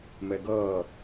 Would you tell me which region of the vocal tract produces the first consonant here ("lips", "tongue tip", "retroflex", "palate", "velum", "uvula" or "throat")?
lips